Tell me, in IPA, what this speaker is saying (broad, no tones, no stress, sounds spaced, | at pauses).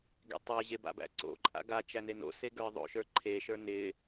ɡ ḛ tˤ ə˞ ʑ e b a̰ b æ̰ ǀ o̰ ǃʼ a̰ ɡ a t͡ʃ æ n e n o̰ s e ɡ ə˞ ðˤ o̰ ʃ ə˞ ǃʰ e ʃ ə˞ n ɪ